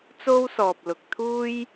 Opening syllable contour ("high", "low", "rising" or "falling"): high